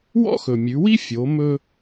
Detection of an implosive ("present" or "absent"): absent